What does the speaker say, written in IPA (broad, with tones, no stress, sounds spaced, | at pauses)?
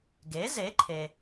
ɡ e˩˥ z e˩˥ ǃʰ e˩